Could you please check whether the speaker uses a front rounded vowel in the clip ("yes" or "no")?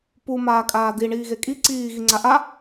no